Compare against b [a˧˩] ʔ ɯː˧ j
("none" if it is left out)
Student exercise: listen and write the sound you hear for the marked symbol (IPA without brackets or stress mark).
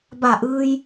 a˧˩